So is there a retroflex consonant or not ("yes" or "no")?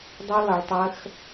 yes